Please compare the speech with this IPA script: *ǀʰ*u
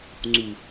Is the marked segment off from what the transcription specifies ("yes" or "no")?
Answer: yes